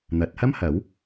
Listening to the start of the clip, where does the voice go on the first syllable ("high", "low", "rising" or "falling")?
rising